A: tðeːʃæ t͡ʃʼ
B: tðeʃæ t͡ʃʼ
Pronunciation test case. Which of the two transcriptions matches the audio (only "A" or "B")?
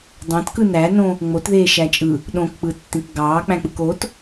A